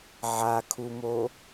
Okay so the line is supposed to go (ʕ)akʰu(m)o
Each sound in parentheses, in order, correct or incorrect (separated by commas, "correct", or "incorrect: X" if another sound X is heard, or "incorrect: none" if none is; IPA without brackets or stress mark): correct, correct